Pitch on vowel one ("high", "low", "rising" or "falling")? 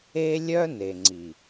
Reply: high